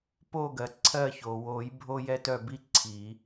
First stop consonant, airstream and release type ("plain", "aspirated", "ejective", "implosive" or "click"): plain